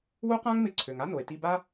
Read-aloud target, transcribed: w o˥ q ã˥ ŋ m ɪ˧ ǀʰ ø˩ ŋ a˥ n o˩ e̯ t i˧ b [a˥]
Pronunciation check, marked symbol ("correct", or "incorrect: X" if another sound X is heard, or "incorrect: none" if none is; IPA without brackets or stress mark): correct